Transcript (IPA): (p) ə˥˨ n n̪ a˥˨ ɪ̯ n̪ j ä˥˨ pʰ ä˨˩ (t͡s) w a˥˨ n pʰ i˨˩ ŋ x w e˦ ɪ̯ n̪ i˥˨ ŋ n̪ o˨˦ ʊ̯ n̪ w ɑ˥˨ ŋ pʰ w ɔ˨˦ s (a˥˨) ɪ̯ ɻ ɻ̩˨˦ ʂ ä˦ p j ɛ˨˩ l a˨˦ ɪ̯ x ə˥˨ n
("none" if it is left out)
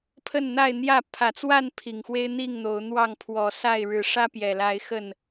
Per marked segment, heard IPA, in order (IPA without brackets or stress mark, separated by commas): pʰ, t͡s, a˥˨